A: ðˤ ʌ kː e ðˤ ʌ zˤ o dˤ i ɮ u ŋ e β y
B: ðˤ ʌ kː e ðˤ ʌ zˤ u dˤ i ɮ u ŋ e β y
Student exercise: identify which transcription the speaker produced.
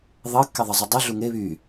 B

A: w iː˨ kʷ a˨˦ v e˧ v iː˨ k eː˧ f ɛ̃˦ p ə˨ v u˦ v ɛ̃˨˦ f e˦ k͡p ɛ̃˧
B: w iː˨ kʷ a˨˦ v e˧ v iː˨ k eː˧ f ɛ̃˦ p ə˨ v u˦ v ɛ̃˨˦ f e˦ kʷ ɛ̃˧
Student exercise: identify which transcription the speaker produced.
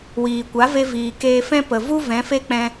A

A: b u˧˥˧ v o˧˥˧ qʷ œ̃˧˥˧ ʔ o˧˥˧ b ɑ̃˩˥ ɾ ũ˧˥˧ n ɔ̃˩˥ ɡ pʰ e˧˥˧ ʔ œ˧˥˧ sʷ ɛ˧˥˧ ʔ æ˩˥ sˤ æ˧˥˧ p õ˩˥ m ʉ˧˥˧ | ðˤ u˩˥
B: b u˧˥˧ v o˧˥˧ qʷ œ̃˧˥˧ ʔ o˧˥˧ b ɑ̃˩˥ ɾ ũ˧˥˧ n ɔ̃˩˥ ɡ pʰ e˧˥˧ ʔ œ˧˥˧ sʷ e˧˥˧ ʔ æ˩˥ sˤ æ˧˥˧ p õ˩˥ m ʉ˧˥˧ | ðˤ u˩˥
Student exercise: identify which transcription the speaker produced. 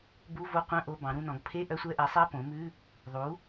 A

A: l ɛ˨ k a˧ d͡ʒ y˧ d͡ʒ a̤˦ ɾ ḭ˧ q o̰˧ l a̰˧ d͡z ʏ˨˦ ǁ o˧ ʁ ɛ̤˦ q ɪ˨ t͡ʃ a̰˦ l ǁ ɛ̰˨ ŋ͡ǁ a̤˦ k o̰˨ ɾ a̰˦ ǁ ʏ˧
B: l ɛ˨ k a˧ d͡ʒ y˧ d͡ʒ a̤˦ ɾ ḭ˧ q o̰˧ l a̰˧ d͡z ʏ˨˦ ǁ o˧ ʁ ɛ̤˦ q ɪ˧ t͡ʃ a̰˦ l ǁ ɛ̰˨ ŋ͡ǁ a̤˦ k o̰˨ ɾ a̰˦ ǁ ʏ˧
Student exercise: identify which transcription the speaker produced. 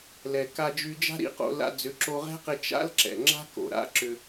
B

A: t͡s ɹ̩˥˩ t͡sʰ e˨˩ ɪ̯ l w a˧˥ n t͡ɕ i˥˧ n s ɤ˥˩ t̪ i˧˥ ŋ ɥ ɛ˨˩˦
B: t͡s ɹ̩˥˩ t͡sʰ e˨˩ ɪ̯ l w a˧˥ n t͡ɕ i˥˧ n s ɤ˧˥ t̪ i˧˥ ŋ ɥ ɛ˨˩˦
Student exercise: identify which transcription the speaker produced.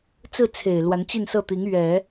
A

